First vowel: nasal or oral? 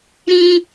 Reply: nasal